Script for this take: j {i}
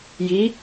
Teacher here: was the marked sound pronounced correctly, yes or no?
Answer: yes